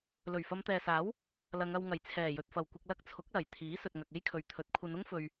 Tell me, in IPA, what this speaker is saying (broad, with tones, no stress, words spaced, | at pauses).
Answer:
lɵ˨˩ɥfɐ˨˧mt̪ɛː˨saː˨˥w | lɐ˨˧ŋɐ˧w ŋɐ˨˩jt͡sʰɛː˨˩jɵ˨t̚fɐ˨˩w kʷɪ˨k̚lɐ˧k̚ t͡sʰʊ˨˥k̚lɐ˨˩j t̪ʰiː˨˥sɵ˨t̚ŋɐ˨k̚ e˥jkʰɵ˨ɥt̪ʰɵ˨˥t̚ kʷʰɐ˨˧nʊ˥ŋ fɵ˧ɥ